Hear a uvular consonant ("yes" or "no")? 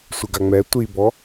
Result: no